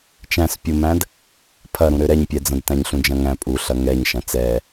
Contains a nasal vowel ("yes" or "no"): yes